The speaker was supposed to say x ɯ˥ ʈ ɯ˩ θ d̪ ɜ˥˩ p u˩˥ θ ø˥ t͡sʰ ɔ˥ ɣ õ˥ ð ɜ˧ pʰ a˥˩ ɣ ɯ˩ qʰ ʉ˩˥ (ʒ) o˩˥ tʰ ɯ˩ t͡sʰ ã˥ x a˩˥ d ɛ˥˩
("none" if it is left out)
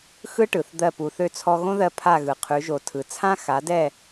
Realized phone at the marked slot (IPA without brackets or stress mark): ʒ